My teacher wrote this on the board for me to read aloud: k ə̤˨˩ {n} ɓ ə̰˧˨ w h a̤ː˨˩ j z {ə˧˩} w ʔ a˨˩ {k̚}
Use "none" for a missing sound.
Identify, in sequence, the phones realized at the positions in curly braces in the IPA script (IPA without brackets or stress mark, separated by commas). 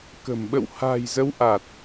m, ə˨˦, t̚